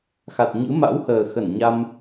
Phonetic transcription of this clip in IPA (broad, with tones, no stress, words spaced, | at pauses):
xa˨˩t̚ɲɨ̰˧˥ ma̰˧˥whəː˨˩xə˧˩n ɲa˧m